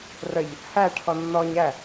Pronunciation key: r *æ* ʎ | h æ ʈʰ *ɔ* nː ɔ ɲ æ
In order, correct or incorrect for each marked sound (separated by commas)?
incorrect, correct